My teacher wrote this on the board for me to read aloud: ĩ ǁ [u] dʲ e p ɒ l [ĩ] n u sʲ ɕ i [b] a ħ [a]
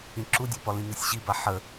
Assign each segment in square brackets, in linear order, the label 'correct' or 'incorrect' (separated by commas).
correct, correct, correct, incorrect